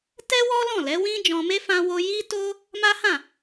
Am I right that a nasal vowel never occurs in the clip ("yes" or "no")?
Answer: no